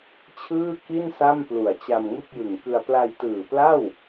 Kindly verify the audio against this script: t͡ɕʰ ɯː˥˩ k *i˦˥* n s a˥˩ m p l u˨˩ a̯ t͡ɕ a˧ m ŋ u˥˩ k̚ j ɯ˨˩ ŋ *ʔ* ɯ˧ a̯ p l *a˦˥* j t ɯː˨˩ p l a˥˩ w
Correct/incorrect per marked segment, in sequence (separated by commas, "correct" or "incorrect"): incorrect, incorrect, incorrect